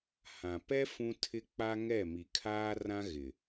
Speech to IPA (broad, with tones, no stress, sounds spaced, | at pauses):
h ã˨ p ɛ˦ f ũ˦ tʰ ɪ˦ k͡p a˦ ŋ ɛ˦˨ m i˨ kʰ aː˦ r ã˦ ɣ ɪ˨